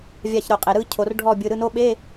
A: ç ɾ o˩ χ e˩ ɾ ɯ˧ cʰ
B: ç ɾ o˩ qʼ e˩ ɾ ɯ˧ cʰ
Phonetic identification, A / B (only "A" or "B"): B